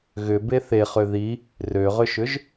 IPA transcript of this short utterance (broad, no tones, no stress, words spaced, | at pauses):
ɣʏbe θeχø ði | røʁʏʃʏʒ